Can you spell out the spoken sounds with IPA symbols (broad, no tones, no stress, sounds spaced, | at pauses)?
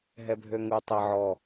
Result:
ɦ ɛ bʱ ø ŋ u tˤ ɛ ʕ ɔ